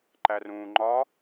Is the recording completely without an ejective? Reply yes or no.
yes